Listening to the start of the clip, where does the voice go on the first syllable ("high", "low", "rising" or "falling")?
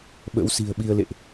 rising